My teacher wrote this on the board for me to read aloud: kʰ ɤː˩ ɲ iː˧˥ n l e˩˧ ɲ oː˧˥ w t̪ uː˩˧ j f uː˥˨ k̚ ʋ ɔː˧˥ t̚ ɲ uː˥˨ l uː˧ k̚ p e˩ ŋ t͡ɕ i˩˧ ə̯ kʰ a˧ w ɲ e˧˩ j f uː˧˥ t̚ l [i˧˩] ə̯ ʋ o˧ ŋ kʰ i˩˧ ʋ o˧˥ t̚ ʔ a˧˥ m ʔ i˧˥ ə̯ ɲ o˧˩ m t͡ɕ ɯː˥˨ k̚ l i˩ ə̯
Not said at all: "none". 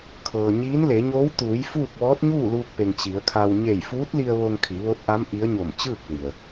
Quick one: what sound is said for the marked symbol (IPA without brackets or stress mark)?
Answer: i˧